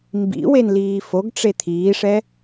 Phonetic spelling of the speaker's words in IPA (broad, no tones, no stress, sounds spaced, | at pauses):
m b ḭ w e n l iː f o ɡ ʈ͡ʂ e t̪ʰ iː ʂ ɛ